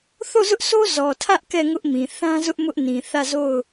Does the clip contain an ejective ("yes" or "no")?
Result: no